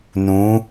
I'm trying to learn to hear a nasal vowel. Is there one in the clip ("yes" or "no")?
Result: yes